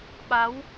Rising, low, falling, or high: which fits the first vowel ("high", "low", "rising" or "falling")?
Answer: rising